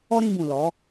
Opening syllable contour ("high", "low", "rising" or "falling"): high